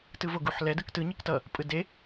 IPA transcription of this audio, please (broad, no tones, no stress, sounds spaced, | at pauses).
t ɯ v o ɡ u ħ l ɛ d ɯ k t ɯ ɲ i k t ʌ | pʼ ɯ d e